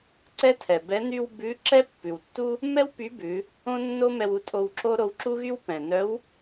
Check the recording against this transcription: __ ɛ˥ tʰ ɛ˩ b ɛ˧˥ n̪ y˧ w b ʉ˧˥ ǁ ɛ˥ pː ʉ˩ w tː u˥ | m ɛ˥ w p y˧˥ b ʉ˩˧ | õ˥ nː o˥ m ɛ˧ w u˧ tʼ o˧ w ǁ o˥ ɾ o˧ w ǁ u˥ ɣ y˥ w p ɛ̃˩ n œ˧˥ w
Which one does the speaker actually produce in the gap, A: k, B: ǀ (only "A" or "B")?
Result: B